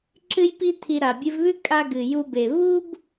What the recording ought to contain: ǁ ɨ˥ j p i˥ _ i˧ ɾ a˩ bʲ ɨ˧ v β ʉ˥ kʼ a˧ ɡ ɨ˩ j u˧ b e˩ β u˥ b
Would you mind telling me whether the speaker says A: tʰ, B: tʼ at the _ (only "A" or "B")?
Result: A